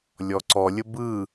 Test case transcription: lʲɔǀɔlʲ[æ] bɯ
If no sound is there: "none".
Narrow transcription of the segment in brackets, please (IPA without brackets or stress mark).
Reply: ə